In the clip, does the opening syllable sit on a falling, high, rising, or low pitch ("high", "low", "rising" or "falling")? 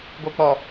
low